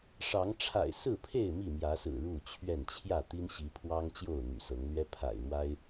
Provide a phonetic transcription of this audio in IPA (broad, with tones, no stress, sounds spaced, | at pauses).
ʂ ɑ˨˦ ŋ ʈ͡ʂʰ a̰˨˩ ɪ̯ s ɹ̩˥˨ pʰ e˥˨ ɪ̯ m i˥˨ m j ä˨˦ s ɹ̩˨˩ ɻ u˥˨ t͡ɕʰ ɥ ɛ˥˨ n t͡ɕʰ j ä˥˨ t̪ i˦ n ɕ i˨˦ pʰ w ɑ˦ ŋ t͡ɕ j o˥˨ ʊ̯ n̪ y̰˨˩ s ɤ˨˦ ŋ l ɥ ɛ˦ pʰ a̰˨˩ ɪ̯ ɻ w a˦ ɪ̯